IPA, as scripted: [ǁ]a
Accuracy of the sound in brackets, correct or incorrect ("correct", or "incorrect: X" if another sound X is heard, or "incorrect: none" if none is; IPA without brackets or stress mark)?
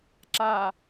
correct